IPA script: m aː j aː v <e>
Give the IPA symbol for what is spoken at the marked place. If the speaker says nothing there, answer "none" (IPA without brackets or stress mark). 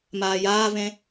ẽ